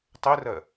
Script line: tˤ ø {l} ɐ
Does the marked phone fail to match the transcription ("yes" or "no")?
yes